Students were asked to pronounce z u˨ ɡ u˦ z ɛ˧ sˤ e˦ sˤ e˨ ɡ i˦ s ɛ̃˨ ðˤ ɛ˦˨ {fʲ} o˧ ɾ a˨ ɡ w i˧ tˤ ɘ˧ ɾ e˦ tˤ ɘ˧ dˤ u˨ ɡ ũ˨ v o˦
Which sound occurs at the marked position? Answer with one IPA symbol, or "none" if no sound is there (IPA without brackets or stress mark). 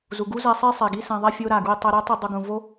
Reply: fʲ